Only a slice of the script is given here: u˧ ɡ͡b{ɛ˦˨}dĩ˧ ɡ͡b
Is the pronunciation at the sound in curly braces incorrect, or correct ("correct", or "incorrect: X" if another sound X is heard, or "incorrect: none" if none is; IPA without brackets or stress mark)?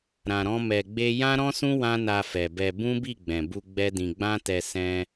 incorrect: ɛ˦